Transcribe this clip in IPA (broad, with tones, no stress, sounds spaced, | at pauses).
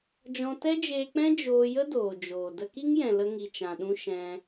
d͡ʒ ɔ̃˧ t ɛ˦ d͡ʒ eː˧ k͡p ɛ̃˦ d͡ʒ oː˧ j ə˦ d oː˨ d͡ʒ oː˨ d ə˧ k i˦ ŋ j ɛ̃˨ l ə˧ ŋ i˨ t͡ʃ ã˨ ɗ ũ˦ ʃ ɛ̃˧